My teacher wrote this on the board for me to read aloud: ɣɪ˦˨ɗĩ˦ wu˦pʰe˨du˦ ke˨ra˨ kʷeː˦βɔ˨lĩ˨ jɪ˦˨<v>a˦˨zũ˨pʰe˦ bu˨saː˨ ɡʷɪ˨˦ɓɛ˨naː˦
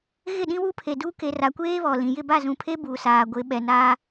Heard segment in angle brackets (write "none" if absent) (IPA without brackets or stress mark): b